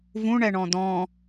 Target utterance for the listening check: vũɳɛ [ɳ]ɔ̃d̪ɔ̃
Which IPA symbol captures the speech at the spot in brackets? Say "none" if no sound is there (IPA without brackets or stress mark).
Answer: ɳ